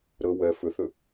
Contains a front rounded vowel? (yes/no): yes